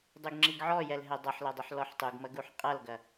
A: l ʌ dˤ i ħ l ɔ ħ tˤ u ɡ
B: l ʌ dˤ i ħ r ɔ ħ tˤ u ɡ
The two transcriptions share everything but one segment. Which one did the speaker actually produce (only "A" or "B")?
A